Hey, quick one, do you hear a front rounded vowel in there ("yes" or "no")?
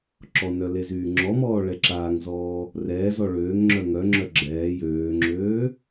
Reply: yes